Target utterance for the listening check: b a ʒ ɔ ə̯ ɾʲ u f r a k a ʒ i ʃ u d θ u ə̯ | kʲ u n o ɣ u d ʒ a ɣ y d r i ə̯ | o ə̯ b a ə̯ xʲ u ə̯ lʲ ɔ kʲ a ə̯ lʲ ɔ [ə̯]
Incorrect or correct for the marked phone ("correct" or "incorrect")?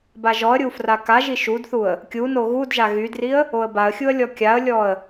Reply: correct